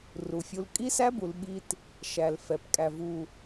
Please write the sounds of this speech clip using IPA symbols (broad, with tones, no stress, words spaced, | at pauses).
ru˨fʲu˦l kʼi˦sæ˦bu˨l ɓi˦t | ʃæ˨l fɛ˨pkʼæ˨vu˨